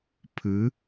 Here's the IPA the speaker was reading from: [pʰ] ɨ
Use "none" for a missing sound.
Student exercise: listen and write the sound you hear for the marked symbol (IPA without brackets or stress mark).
pʰ